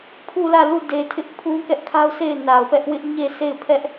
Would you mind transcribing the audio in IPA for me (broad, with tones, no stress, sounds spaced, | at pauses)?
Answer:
pʰ u˦˨ l ä˦˨ l u˦˨ d e˨ tʰ ɪ˦ ʔ pʰ ũ˦ k ɛ˦ ʔ kʰ a˦ ʊ̯ sʰ e˦˨ ɪ̯ n a˨ ʊ̯ p ɛ˦ ʔ w ɪ˦ ʔ ɲ e˦˨ s e˦˨ ɪ̯ pʰ ɛ˦ ʔ